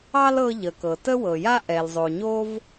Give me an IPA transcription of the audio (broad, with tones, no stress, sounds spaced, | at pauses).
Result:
ɑ˥ l ɤ˥ ʎ ə˩ k ɤ˩ t ə˥ w ɤ˩ j a˥ ʔ ɛ˩ l zˤ o˩ ɲ o˥ v